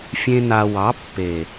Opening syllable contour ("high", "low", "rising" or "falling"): high